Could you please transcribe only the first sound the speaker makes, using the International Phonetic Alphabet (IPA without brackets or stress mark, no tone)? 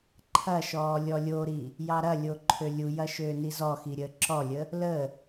ǃʰ